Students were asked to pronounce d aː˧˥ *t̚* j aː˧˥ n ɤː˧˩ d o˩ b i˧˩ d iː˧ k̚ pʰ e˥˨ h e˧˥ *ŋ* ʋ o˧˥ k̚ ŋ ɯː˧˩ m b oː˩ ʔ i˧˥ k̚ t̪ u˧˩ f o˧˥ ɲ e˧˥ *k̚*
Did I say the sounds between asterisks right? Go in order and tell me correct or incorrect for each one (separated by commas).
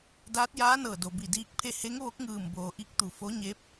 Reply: correct, correct, incorrect